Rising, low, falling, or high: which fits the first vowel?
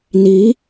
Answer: rising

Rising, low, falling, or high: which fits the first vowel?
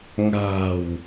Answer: low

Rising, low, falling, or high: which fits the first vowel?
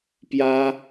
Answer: high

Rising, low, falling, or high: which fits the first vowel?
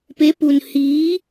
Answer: rising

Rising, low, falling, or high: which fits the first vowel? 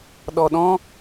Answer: low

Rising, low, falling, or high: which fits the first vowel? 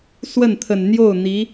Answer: falling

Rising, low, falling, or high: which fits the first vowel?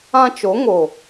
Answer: high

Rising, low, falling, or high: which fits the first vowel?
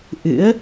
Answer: rising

